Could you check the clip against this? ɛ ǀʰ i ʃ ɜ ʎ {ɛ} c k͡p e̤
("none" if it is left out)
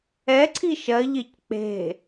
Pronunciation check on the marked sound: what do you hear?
e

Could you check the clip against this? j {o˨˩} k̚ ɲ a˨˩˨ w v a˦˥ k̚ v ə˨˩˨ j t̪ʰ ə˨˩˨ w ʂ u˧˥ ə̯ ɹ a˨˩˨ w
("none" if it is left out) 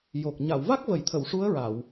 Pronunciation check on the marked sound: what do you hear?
o˨˩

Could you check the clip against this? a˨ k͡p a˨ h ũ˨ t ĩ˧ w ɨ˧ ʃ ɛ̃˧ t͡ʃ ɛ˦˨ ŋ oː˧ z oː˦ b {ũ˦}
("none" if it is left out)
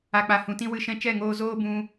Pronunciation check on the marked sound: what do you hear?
ũ˧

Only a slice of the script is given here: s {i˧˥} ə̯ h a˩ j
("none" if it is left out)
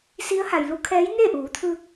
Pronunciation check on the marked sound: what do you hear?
i˧˥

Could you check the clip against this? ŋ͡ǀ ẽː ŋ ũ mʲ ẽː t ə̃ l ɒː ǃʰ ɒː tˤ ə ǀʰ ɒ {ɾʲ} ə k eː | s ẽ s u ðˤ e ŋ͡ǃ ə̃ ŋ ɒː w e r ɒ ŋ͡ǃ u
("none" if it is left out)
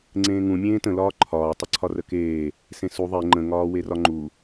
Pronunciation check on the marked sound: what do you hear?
r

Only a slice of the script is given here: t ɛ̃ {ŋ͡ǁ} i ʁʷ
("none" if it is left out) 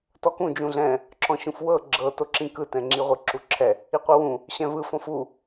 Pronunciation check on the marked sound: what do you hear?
ŋ͡ǁ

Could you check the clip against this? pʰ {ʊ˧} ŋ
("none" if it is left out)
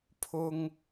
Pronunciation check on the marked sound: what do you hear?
ʊ˧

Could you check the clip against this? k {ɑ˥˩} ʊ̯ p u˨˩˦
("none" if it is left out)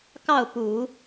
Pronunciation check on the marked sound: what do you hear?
ɑ˥˩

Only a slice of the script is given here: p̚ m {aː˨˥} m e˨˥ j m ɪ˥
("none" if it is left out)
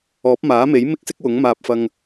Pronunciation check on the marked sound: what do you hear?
aː˨˥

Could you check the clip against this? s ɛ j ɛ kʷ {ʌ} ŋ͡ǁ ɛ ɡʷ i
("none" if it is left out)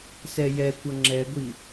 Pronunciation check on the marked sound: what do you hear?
ʌ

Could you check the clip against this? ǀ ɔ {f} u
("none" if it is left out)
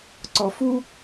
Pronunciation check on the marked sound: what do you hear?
f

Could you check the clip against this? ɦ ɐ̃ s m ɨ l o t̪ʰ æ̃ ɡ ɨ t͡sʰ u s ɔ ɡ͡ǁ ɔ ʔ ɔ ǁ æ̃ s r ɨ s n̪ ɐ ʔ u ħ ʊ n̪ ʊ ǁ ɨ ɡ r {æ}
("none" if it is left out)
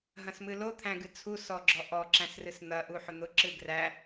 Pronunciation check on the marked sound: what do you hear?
æ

